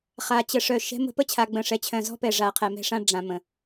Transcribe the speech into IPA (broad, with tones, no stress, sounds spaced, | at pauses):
χ a˨ t͡ɕ ə˦ ʂ œ˦˨ ʃ ɛ̤˦ m ə̤˦ p ə˦ t͡ɕʰ a˨ ɡ͡b ə̃˨ ʂ ɛ˨ t͡ɕʰ œ̃˨ z ɔ̤˦ p ɛ˨ ʐ a˨ qʰ ɛ˨ m ɛ̤˦ ʂ ã˦ ɖ͡ʐ ã˨ m ə̃˨